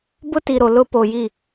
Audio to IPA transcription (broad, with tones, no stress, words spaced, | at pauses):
bʊ˦ti˨ɾo˨ lʊ˦ po˨ji˦˨